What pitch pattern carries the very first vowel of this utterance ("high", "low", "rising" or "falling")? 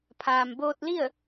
low